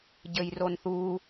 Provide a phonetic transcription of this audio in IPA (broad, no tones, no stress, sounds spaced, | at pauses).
ɟ ɘ j r o n θ u